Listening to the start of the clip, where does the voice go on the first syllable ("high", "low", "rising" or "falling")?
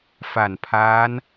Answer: low